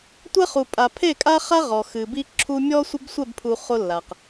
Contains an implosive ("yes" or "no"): no